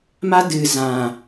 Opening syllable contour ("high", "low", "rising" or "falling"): high